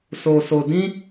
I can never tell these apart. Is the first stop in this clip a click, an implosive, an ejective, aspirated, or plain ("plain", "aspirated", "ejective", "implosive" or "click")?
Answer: plain